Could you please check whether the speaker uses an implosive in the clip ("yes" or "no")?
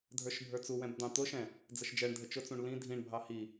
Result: no